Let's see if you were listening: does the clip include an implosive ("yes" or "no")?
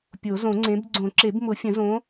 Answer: no